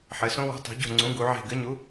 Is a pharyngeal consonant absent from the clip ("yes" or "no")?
no